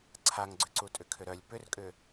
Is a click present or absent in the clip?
present